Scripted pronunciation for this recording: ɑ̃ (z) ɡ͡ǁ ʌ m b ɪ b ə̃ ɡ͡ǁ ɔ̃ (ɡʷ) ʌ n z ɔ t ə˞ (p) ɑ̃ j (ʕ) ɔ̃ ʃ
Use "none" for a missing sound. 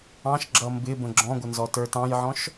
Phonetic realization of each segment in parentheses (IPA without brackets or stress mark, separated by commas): ʃ, ɡʷ, t, ʕ